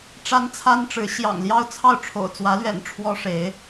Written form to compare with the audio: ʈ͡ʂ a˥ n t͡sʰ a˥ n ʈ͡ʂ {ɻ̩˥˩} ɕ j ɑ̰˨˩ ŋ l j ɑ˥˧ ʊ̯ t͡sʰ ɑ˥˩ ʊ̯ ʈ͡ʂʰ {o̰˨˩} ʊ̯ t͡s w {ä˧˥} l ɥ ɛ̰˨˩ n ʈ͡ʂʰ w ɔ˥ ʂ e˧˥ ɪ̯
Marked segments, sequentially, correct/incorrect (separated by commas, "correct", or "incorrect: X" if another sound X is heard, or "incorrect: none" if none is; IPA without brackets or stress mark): incorrect: ɻ̩˧˥, correct, correct